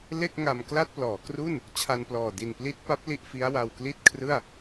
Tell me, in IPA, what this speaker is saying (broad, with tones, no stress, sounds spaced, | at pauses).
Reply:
l e˥˩ k̚ ŋ a˧ m k l a˥˩ t̚ p l ɔː˩˦ k r u˥˩ n | t͡ɕʰ a˧ n p l ɔː˨˩ d i˨˩ n p l i˦˥ t̚ p a˦˥ p̚ l i˥˩ ʔ f i˦˥ a̯ w a˧ w k l i˥˩ t̚ kʰ r ɯ˥˩ a̯